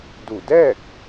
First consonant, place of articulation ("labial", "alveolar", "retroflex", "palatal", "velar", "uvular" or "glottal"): alveolar